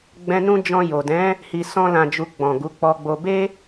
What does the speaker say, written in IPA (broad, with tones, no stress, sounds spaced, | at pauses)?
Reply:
ɡ͡b ɛ̃˧ n ũ˦ d͡ʒ ɔ̃˧ j o˨ d ɛ̃˨˦ | h i˨ s ɔ̃˧ l ã˨ d͡ʒ u˨ ɡ͡b ɔ̃˨ ɡ u˨˦ k͡p ɔ˧ ɡ͡b o˧ b e˦